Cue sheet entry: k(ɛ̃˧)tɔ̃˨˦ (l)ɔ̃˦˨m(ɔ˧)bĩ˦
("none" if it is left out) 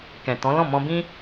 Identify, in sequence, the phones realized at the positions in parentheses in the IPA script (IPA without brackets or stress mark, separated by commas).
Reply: ɛ̃˨, l, ɔ̃˧